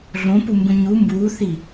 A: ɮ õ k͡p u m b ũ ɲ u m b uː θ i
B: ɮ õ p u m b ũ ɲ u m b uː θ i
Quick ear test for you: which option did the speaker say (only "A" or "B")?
B